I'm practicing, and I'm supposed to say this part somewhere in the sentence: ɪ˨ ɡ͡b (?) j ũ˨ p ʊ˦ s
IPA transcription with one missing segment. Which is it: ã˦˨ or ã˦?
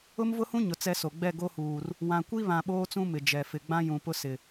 ã˦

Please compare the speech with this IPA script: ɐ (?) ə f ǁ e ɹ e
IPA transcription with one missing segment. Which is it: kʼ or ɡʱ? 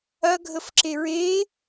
ɡʱ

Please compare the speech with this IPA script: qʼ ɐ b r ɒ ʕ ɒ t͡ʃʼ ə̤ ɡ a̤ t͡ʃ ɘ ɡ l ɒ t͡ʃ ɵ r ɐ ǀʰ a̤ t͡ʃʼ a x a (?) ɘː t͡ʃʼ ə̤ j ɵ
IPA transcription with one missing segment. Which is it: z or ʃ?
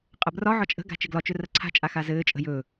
z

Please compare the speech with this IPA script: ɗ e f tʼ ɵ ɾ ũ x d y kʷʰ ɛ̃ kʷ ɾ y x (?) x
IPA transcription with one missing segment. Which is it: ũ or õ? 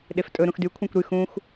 ũ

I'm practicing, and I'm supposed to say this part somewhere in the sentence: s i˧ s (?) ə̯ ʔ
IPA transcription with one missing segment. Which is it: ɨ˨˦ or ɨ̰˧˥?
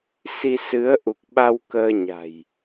ɨ˨˦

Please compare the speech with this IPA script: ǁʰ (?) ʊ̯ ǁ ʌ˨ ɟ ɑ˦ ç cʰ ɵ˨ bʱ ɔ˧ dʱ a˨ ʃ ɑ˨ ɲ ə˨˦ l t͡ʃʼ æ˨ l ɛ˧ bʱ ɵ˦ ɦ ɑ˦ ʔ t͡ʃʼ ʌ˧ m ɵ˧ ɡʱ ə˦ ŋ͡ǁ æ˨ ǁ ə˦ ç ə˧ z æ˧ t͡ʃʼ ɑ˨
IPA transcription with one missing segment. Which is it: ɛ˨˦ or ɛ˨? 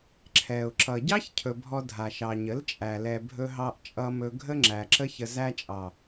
ɛ˨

